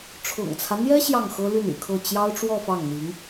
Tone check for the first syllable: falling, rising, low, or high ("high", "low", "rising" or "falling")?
low